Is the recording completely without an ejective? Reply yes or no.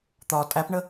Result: no